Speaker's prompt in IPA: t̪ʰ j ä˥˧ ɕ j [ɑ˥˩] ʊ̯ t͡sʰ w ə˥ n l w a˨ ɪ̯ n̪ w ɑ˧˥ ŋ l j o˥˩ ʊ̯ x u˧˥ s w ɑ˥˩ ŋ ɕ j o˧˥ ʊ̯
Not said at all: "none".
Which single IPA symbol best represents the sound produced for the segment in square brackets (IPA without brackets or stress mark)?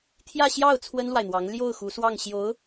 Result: ɑ˥˩